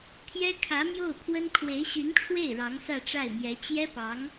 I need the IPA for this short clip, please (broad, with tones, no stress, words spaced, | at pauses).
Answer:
t̪ʰjɛ˥kʰä˧˥mjo˥˩ʊ̯pʰwə˥n kʰwe˧˥ɪ̯ɕy˧˥nʈ͡ʂʰwe˥˩ɪ̯ ɻɑ˧˥ŋsä˥˧ʈ͡ʂa˥˩ɪ̯mjɛ˧˥ t͡ɕjɛ˥pɑ˧˥ŋ